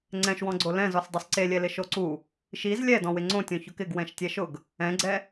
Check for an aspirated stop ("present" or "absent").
absent